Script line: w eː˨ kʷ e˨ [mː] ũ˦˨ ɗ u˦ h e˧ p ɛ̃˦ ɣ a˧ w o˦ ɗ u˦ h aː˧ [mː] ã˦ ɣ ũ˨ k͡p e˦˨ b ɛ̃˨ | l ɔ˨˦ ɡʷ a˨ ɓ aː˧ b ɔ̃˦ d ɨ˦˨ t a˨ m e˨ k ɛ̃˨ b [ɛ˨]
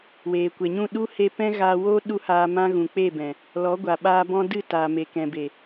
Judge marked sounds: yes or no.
no, no, no

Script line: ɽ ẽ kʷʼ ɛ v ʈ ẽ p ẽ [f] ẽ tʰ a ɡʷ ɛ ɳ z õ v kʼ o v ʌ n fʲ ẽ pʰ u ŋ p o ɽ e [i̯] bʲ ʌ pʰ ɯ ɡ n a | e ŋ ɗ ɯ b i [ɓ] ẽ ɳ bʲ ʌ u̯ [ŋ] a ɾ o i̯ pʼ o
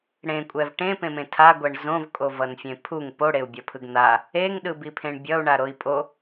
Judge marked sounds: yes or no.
no, no, no, no

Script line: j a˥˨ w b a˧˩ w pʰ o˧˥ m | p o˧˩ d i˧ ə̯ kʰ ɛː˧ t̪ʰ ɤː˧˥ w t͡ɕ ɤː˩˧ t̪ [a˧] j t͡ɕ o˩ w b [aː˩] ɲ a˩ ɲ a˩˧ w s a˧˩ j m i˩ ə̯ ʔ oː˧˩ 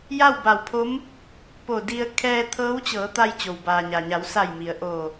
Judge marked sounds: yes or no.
yes, yes

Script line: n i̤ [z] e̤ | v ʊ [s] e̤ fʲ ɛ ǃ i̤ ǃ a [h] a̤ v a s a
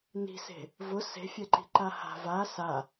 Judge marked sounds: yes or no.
no, yes, yes

